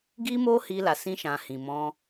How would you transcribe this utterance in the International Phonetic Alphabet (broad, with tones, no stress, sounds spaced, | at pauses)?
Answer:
ɡ i˦ m o˦ h i˧ l a˨ s ĩ˧ ʃ ã˨ h ĩ˨ m ɔ̃˧